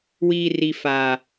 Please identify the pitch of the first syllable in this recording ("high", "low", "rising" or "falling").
low